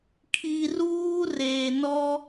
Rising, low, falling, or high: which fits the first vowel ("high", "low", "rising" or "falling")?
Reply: low